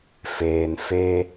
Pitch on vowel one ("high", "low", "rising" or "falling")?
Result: low